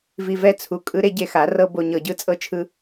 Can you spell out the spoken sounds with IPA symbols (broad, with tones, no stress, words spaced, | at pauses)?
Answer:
vi˧vɛ˦ t͡sʰu˨kʼɯ˦ ɾe˦ɟe˧xa˨˦ rɤ˦bo˧ɲɤ˧ɟɯ˦ t͡sʼɤ˦t͡ʃʰɯ˦